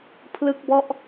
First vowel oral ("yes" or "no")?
yes